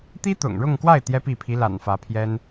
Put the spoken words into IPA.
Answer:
t̪i˥t̪ʊ̰˨˩ŋɻʊ˥˧ŋkwa˥˩ɪ̯ t̪jɛ˥pi˥˩ pʰi˧˥la̰˨˩n fä˧˥pʰjɛ˥n

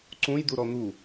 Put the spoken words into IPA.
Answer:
ǀũjd̪uɾɔ n̪u

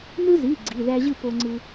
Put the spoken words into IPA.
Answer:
nɯ˦zi˩˧˩ ɡ͡ǀi˩˧˩ðæ˦ʑɯ˥˨ po˦ŋ͡ǀɯ˦

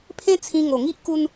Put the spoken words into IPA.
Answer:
pʰẽ˦t͡sʰĩ˧ ŋo˨˩ŋi˦ʔku˧n

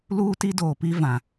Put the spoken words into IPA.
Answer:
luː˦ti˦doː˨ pi˦vã˨

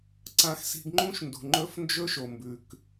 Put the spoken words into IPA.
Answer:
ǀã˧xsi̤˧ɡŋ͡ǃũ˦ʃ ndṳ˨ŋ͡ǃɵ˦fnd͡ʒɵ˦ʃo˨ mbʉ˨k

